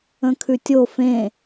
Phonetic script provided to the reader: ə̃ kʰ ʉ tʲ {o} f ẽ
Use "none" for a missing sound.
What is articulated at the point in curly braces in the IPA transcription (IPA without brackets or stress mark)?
o